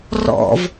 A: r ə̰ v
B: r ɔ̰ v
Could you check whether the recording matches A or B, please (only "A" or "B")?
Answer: B